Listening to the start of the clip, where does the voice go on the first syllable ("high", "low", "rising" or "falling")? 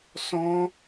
high